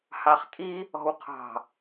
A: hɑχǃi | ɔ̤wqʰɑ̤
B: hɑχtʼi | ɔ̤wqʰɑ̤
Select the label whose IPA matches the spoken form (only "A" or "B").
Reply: B